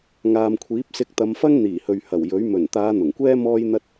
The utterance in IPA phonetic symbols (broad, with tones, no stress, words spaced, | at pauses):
ŋaː˨mkʷʰiː˨˥p̚sɪ˧k̚ t̪ɐ˨˧mfɐ˥ŋn̪iː˨˩hɵ˨ɥ hɐ˨˩w jɵ˨˥ɥ mɵ˨˩nt̪aː˨˧ n̪ʊ˨˩ŋkʷɛː˥ mɔː˥jn̪ɐ˥t̚